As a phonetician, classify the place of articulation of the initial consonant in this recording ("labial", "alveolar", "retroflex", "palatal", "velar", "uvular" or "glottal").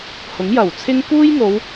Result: glottal